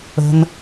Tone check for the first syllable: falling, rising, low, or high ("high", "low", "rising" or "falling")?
low